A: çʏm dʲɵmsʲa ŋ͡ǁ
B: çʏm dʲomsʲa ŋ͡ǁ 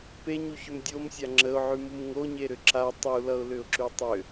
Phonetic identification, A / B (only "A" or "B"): B